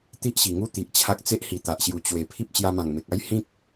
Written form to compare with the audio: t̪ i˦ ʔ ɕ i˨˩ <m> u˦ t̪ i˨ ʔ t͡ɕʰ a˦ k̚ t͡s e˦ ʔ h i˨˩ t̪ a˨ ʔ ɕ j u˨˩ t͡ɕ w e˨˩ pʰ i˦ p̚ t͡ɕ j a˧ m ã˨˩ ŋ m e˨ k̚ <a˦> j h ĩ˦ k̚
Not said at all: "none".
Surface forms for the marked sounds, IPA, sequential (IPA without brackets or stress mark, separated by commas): ŋ, a˦